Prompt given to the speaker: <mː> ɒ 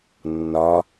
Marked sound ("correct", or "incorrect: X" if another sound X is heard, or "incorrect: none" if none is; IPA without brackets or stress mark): incorrect: nː